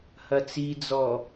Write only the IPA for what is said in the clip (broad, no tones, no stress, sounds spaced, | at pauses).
h ɐ t͡s i d͡z ɔ